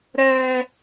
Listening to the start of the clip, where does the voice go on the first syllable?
high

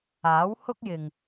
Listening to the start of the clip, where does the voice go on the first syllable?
rising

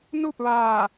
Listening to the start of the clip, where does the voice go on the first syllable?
falling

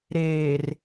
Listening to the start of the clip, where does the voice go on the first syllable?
low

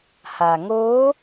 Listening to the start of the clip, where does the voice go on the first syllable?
low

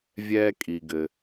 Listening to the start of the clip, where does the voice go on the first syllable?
high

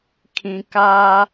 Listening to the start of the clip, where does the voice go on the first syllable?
low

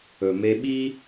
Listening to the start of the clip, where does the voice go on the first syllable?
low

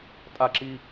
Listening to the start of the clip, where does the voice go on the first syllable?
high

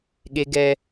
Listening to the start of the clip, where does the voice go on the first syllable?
high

